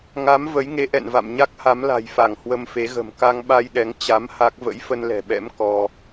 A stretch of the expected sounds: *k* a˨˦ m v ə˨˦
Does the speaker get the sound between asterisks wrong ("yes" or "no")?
yes